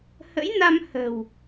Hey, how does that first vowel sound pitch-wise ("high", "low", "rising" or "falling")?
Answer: rising